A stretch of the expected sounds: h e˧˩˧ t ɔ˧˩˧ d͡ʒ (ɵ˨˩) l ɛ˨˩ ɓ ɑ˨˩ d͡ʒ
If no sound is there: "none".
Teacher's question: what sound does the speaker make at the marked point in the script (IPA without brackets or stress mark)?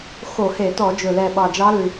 ɵ˨˩